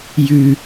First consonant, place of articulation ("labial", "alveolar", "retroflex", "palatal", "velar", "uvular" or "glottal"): palatal